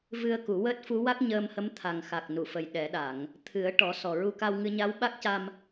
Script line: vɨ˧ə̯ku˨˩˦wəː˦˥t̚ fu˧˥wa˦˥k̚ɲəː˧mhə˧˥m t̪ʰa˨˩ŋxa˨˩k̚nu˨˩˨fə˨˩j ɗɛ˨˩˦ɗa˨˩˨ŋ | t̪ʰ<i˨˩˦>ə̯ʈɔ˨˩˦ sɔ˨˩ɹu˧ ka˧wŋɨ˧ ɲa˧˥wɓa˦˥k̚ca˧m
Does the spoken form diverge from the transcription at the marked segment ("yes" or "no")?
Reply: yes